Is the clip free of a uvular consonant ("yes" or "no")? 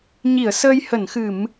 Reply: yes